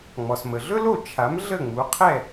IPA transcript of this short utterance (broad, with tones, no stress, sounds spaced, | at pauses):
ŋ͡m ɔ˩ s m ə˩ ɮ ɵ˥ l o˥˩ t͡ʃʰ a˩˥ m ɮ ə˥˩ ŋ͡m u˩˥ qʰ ɛ˥˩